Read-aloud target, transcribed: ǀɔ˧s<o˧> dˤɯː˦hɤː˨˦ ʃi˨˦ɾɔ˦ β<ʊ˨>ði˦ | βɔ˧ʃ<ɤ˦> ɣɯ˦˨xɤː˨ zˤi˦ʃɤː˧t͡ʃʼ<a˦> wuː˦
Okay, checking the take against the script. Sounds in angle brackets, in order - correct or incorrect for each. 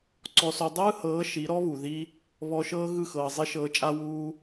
correct, incorrect, incorrect, correct

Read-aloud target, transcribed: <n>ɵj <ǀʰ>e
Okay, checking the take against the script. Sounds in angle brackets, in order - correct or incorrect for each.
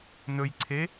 correct, correct

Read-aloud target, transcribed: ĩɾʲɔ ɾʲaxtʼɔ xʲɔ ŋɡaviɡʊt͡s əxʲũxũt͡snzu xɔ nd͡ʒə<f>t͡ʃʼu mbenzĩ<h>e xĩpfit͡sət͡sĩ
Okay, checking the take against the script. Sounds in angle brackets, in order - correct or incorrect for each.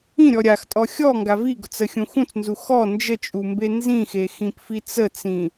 incorrect, incorrect

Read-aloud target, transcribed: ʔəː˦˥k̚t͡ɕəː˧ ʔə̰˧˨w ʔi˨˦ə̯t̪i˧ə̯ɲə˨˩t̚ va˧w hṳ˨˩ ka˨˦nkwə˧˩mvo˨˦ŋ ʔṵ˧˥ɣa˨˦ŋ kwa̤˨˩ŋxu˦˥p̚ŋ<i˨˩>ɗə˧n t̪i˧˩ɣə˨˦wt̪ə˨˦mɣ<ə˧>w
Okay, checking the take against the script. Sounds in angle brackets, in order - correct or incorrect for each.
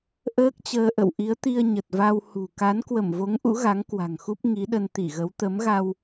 incorrect, incorrect

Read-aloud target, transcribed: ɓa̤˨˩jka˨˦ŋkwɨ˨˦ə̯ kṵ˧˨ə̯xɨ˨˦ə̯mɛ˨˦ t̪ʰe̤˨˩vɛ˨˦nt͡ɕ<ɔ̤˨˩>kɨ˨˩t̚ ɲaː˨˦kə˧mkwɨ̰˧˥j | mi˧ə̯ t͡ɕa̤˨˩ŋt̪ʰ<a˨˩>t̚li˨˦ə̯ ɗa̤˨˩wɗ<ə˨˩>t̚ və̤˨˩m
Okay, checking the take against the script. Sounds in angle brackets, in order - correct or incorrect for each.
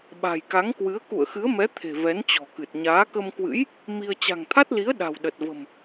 correct, incorrect, correct

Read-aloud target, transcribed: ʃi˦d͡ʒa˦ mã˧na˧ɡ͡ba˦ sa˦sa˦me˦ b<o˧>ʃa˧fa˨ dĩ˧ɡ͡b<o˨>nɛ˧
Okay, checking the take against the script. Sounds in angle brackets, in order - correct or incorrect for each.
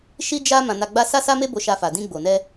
correct, correct

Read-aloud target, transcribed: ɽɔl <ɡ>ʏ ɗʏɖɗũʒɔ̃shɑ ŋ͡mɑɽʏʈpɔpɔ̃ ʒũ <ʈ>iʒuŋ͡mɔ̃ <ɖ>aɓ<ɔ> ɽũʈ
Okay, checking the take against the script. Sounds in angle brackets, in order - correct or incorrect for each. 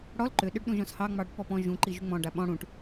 incorrect, incorrect, correct, incorrect

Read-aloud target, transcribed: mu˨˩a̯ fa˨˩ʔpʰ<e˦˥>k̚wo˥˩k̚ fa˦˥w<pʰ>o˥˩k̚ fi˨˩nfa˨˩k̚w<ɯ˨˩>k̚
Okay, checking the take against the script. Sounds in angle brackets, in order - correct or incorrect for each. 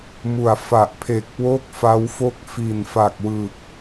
incorrect, incorrect, correct

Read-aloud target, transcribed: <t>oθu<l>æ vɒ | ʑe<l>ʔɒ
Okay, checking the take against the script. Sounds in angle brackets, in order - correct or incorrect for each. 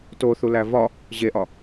correct, correct, incorrect

